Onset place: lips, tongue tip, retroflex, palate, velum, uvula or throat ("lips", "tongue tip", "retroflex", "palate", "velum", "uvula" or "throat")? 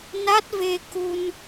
tongue tip